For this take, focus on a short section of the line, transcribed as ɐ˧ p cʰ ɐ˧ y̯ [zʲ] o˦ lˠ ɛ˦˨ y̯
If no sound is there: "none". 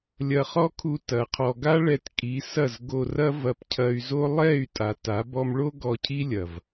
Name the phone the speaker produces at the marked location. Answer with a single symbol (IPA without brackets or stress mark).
z